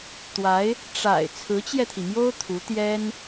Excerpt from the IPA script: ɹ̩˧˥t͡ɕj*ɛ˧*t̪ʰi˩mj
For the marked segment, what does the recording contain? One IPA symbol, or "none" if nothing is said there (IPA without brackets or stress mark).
ɛ˧